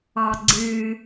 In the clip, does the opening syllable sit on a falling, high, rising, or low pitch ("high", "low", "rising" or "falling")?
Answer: low